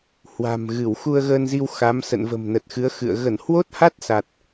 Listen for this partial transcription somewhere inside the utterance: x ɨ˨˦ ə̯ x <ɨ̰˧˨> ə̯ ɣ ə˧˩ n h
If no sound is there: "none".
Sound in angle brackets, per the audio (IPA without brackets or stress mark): ɨ̰˧˨